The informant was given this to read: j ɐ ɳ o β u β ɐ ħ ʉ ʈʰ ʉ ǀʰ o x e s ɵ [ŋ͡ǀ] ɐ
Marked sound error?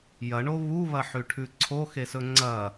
no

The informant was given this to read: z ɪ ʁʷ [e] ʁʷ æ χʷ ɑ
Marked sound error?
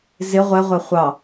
yes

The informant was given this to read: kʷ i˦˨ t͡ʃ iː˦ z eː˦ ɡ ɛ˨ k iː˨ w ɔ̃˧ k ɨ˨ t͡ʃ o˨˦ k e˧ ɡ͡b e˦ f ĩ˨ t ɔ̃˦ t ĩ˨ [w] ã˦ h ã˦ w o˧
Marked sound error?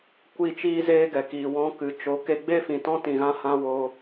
yes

